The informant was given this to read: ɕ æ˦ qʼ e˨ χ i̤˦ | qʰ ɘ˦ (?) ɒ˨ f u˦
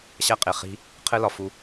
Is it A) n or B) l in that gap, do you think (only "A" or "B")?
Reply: B